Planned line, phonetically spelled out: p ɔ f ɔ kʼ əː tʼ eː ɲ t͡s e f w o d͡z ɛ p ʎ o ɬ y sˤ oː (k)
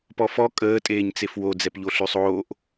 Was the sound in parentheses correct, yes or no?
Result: no